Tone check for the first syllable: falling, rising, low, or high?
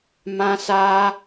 high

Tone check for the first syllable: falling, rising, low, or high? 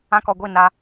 high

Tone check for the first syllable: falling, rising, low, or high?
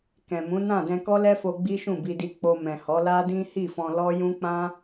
low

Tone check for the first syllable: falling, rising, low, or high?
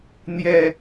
low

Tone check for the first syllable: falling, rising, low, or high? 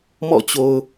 falling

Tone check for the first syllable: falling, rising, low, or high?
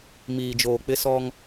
low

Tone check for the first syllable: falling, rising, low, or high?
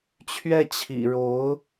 falling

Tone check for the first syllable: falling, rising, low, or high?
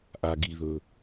low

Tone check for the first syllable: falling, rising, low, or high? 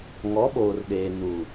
rising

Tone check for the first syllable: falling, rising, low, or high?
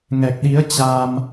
low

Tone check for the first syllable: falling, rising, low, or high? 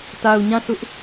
low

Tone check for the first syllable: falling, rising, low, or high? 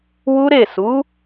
high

